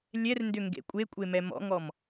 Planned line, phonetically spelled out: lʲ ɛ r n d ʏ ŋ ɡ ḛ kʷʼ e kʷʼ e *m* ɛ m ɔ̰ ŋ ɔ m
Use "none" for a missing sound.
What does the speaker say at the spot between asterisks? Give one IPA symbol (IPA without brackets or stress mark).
m